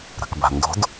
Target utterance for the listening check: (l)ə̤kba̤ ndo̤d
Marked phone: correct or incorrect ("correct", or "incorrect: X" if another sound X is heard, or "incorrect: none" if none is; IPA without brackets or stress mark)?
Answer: incorrect: ɾ